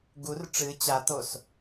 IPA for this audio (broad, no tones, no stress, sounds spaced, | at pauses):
ɡ u r ʈ͡ʂ ɨ t͡ɕ a t̪ o s